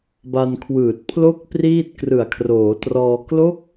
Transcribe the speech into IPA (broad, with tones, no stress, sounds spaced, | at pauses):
b a˧ n kʰ w ɯː˨˩ t̚ pʰ l o˥˩ k̚ p r iː˥˩ t̚ k r ɯ˨˩ a̯ kʰ r oː˩˦ t r ɔː˧ k l o˦˥ k̚